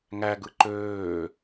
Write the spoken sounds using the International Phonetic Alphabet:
ŋ æ ɡ ɯ ǃ øː

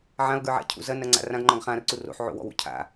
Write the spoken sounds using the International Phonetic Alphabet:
ʕ ã o̯ ɡ ə˞ ʕ a̰ cʰ ṵ z ɐ n ɐ ŋ͡ǀ a̰ r ã ɡ ŋ͡ǃ ɔ̃ ɡ χ ã r ǀ u r o̰ ħ ʕ o̰ w ɔ̰ w ṵ cʰ a̰

